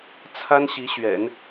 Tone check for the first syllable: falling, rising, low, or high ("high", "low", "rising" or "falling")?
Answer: high